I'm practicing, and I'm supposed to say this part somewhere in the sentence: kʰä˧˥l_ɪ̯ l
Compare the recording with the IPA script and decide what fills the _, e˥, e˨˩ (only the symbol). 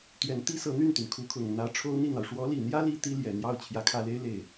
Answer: e˥